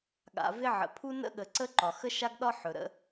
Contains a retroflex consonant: no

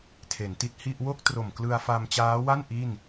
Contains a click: no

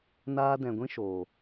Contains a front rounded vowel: no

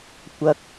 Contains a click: no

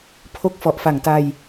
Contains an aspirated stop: yes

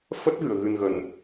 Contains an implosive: no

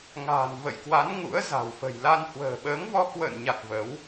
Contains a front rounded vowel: no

